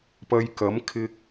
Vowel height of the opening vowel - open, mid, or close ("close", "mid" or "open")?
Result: open